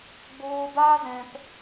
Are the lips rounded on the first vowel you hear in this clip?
yes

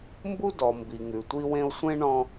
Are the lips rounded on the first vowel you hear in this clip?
yes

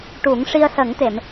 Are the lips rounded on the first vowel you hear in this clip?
yes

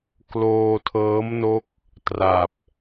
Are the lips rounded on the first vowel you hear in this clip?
yes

